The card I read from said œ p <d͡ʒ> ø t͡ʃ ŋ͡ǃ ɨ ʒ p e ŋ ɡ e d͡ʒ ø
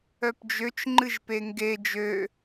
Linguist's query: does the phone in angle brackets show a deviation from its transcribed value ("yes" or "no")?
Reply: no